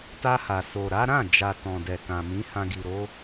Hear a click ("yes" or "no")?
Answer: no